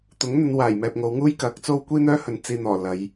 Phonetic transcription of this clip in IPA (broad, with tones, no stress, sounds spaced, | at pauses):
t̪ ʊ˨˥ ŋ n̪ ɵ˨˧ n w aː˨˩ j m ɛː˨ p̚ ŋ o˨˧ w ŋ uː˥ j k ɐ˨˥ k̚ t͡s o˥ w kʷ iː˥ n̪ œː˥ h ɵ˨˧ n t͡s iː˧ n̪ ɔː˨˩ l ɐ˨˧ j